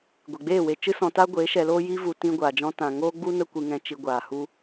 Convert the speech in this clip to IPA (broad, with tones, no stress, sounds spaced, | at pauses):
ɡʷ e˨ ɡ͡b eː˦˨ w e˧ t͡ʃ ɨ˦ s ɔ̃˧ t aː˦ ɡʷ e˨˦ ʃ ɛ˧ l oː˦ j i˦ v u˧ t ĩ˧ ɡʷ aː˨ d͡ʒ ɔ̃˧ t ã˨ ŋ oː˦ ɡ͡b u˦ n ə˦ kʷ ɨ˧ ŋ ɛ̃˧ t͡ʃ i˧ ɡʷ aː˨ h u˦